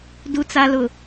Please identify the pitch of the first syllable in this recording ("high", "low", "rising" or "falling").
low